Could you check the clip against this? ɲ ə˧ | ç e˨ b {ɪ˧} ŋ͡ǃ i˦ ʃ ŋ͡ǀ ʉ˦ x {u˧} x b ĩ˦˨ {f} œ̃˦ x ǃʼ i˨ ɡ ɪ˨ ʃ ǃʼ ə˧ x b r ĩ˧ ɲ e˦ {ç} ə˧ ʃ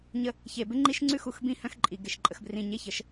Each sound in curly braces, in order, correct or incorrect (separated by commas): incorrect, correct, incorrect, correct